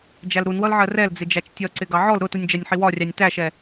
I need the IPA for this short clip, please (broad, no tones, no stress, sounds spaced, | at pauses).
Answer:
d͡ʒ æ l ɾ u n w ʌ l ʕ ɜ r ɛ l d͡z ɪ d͡ʒ æ t͡ʃ tʲ ʌ ǀ ɪ ɡ ɑ ʕ ɔ l ɾ ʊ t u nʲ d͡ʒ æ nʲ ħ i w ɒ rʲ ɑ nʲ t æ ʃ ɛ